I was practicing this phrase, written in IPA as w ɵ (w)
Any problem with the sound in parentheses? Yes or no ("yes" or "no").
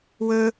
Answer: yes